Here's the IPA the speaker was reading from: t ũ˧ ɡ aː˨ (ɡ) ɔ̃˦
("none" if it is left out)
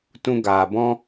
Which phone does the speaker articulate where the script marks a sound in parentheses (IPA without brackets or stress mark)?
b